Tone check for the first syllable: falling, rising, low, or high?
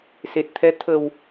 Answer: low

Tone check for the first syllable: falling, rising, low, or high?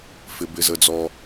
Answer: low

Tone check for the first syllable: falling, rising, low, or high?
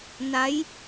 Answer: rising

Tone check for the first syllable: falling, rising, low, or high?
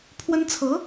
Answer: high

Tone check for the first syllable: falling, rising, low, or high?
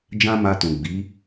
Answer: high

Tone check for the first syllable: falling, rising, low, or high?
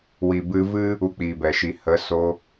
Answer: low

